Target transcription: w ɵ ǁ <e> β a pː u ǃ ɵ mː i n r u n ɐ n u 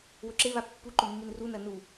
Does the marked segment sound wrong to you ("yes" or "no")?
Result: no